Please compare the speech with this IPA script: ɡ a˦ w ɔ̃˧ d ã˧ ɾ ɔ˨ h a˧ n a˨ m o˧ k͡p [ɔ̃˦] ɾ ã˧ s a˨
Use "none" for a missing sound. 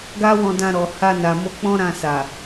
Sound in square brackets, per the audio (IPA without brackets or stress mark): ɔ̃˦